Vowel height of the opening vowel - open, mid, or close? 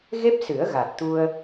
mid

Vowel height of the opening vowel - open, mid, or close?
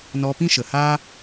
mid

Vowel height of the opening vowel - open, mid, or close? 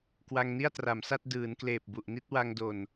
open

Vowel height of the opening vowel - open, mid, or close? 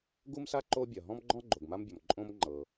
close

